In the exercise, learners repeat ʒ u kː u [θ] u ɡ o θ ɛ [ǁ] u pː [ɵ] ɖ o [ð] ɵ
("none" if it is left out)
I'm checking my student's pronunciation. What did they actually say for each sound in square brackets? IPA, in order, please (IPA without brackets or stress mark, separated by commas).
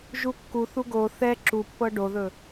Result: θ, ǁ, ɤ, ð